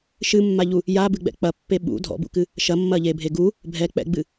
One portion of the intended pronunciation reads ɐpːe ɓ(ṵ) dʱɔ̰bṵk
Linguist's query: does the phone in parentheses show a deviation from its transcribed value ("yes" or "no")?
no